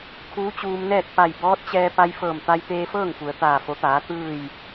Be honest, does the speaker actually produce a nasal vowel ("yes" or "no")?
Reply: no